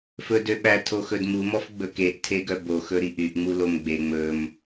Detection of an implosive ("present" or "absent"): present